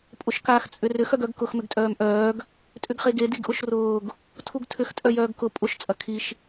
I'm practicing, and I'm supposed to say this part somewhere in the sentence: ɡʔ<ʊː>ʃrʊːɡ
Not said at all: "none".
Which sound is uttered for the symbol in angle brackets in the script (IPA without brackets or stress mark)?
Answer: ʊ